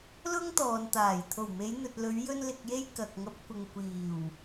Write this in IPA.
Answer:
l ʊ˥ ŋ t̪ ɔː˨ n t̪ aː˨˩ j t̪ʰ o˨˩ w m e˨˧ j n̪ ɵ˨ t̚ l ɵ˨˧ ɥ j ɵ˧ n l ɪ˨ k̚ j e˧ j k ɐ˨ k̚ ŋ ɐ˧ p̚ kʷ ɪ˨ ŋ kʷ iː˨˩ w

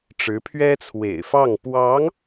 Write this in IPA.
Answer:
ʈ͡ʂ ɻ̩˧˥ pʰ ɥ ɛ˥ t͡sʰ w ḛ˨˩ ɪ̯ f ɑ˥˩ ŋ p w ɑ˧˥ ŋ

